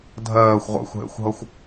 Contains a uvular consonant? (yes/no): yes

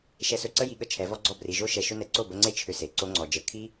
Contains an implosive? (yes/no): yes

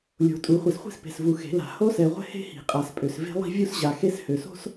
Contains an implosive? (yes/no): no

